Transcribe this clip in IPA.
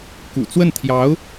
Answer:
k ṵ˨˩ t͡s w ə˥˩ n t̪ʰ j ɑ˧˥ ʊ̯

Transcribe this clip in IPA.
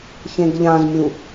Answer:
ç ẽ ɡ ʎ ã z mʲ u

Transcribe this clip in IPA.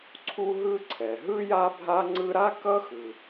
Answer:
ǀʰ u˦ ɦ ɯ˦ ǀʰ ɛ˩ ɦ ɯ˥ j a˦ bʱ a˦ ŋ͡ǀ ɯ˦ ɾ a˥ k ʌ˥ x ɯ˩

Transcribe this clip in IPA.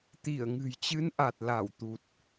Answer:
t̪ i˧˩ ə̯ ŋ ɨ̤˨˩ j t͡ɕ ɨ˨˦ n ʔ a˨˩ t̚ l a˧˩ w t̪ u˨˩ t̚

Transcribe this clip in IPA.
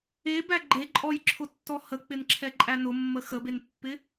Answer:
e b æ ɡ͡ǃ e ǃʼ ɔ j ǁʰ ʊ tː ɔ h ə k͡p ɪ n ǁʰ ɛ ǃʼ æ n ʊ mː ə x ə b e n pː ɪ

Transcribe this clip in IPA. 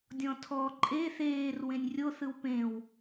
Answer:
dʲ ɔ̃ tʰ ɔ ǃʼ e θ eː r w ẽ nʲ rʲ o θ ɯ w p ẽ w

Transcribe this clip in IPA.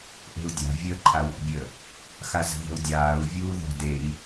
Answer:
ʔ e̤ u̯ dʲ a̤ vʲ əː ǃʰ a w ɔ̰ bʲ ə | x a z ə̤ ð ə̤ u̯ dʲ aː u̯ vʲ uː ð ɔ̤ d e i̯

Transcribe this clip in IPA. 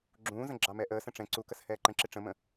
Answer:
ɡ͡ǁ ũː z ə̃ ɡ͡ǁ ɑ m ɛ ʔ əː s ə̃ ʈ͡ʂ ɛ̃ ǀ u k ə s h ɛː ǃ ə̃ ǁ ɪ ʈ͡ʂ ə̃ m ə̃

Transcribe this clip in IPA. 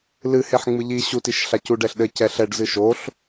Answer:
l ɨ h e ħ ŋ͡m ɨ ʎ i ɕ u t i ʃ ɬ a c u ɖ ɛ ɬ ɗ ɘ c ɛ ɬ ɛ ɖ z ɨ ʃ o ɬ

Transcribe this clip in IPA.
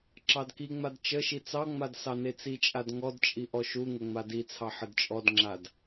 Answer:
ǁ ɑ d k i ŋ͡m a d t͡ʃ ə ʃ i t͡s ɑ ŋ͡m a d s ɑ n e t͡s i t͡ʃʼ a d ŋ ɔ d t͡ʃʼ i ʔ ɔ ʃ u ŋ ə ŋ͡m a d i t͡sʰ ɑ ħ ə d t͡ʃʼ ɔ d ŋ͡ǁ a d

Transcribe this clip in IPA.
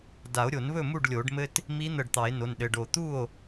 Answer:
d a˨˩˦ o̯ ɾʲ o˨˩˦ n β ɵ˥˩ m u˥˩ ɖ lʲ o˨˩˦ ɖ m ɘ˧ t | m i˧˥ n̪ ə˧˩ ɖ t̪ ɑ˨˩˦ e̯ n o˩˧˩ n ɗ ɘ˩˧˩ ɖ o˧˩ t̪ u˥˩ o̯

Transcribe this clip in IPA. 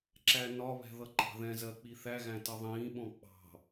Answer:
ǁ æ n ɒ β ɛ̤ ð ʌ ǃ ɑ̤ ð ɛ̃ z ɜ k͡p i θ æ ɣ æ̃ t ʌ ðˤ ĩː ɓ ɔ̃ k͡p ɑ̤

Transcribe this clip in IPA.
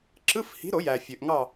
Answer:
ǁ ɯ˧˥˧ f h i̤˨˥ ɾ o˨˩˦ j æ˩ fʲ ø˩ ʔ ŋ ɑ˦˨

